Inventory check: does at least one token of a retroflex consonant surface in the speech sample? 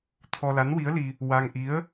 no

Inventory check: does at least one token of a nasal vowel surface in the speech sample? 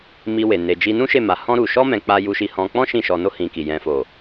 yes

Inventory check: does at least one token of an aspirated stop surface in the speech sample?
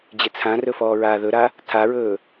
yes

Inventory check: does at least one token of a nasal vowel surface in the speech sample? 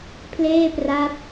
no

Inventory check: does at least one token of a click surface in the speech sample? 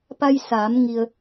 no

